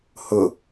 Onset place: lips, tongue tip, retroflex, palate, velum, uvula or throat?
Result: throat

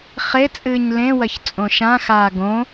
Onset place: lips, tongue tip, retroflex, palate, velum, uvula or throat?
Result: uvula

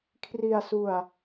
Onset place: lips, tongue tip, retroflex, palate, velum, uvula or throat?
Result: velum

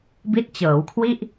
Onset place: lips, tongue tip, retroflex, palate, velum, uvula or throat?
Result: lips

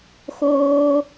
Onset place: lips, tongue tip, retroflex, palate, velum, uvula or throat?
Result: velum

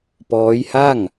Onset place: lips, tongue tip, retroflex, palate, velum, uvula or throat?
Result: lips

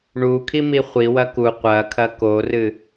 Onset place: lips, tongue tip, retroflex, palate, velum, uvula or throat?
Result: retroflex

